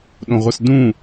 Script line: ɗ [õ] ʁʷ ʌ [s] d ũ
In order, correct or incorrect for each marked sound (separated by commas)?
correct, correct